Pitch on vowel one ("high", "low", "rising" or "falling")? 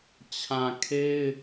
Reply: low